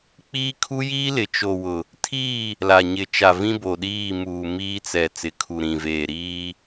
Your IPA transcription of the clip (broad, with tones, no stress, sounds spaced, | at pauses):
k͡p iː˦ kʰ u˦ j iː˦ l ɪ˨ t͡ʃ o˨ w ʊ˨ | tʰ iː˦˨ | l a˨ ɲ ɪ˨ t͡ʃ a˨ v ĩ˦ b o˨ ɗ iː˦˨ m uː˨ m iː˦ t͡s ɛ˨ t͡s ɪ˨ kʰ u˨ ɾ ĩ˨ v eː˨ ɾ iː˦